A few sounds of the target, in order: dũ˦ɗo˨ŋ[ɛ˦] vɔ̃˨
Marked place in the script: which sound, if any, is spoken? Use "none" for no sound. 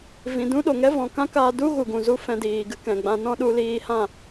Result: ɛ˦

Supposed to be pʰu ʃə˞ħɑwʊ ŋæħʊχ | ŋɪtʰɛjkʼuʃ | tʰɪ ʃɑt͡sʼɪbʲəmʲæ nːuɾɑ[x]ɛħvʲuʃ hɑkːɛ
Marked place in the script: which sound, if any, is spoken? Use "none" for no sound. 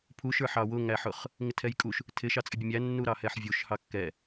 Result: h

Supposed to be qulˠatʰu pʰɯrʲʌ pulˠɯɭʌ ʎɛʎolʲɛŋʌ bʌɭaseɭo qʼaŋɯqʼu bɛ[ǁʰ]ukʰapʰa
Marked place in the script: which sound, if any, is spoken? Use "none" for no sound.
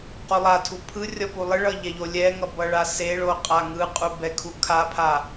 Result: kʰ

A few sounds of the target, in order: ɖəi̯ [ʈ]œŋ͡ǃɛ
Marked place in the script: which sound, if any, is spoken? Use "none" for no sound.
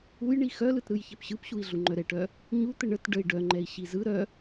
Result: ɖ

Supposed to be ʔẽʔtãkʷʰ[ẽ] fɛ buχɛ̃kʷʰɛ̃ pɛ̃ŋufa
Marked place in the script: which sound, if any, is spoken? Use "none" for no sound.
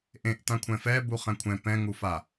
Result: ɛ̃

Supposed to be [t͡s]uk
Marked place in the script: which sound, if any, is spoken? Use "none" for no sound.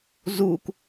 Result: z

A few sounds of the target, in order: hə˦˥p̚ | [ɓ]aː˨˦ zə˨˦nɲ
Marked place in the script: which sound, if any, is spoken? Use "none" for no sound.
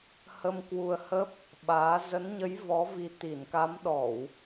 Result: ɓ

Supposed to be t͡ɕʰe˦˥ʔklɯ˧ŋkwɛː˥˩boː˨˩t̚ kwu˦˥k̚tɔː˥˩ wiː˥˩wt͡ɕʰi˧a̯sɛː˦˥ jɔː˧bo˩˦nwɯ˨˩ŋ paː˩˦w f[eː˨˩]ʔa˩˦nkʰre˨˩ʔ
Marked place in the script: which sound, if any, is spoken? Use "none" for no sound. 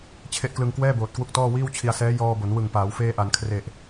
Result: eː˧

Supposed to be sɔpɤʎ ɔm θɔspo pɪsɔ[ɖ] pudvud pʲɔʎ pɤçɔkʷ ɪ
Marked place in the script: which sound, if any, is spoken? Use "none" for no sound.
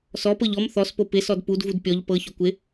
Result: d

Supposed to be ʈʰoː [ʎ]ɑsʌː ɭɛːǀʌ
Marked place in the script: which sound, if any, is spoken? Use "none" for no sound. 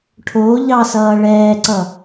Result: ʎ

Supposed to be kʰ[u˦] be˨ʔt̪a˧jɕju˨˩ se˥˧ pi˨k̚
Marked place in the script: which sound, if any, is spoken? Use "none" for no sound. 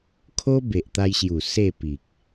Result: o˦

